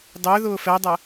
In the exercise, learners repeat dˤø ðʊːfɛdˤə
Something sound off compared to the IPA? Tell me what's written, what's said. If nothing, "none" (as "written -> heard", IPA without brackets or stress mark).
none